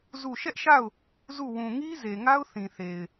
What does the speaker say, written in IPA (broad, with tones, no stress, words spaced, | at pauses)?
zu˦˨ ʃɛ˦ʔʃa˦˨ʊ̯ | zu˦˨ wũ˨ŋi˦ze˨ŋa˦ʊ̯ θĩ˨θe˨ɪ̯